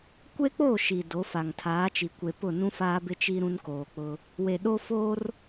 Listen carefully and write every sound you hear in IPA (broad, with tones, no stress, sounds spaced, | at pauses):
kʷ e˦ k͡p o˦˨ ʃ i˨ d o˨˦ f a˨ ŋ tʰ aː˨˦ t͡ʃ i˨ kʷ e˨ p ʊ˦˨ n ũ˦ f aː˦ b ɪ˦ t͡ʃ i˦ ɾ ũ˦ n k oː˨ k͡p ʊ˦ | w e˨ ɗ o˦ f o˦ r